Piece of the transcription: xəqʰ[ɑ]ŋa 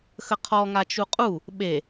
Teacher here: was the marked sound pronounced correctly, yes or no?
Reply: no